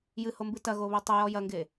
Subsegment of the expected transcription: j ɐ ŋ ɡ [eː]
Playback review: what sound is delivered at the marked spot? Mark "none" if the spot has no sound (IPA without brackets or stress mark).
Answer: e